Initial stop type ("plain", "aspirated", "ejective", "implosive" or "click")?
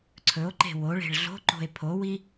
click